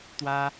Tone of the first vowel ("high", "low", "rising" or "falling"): high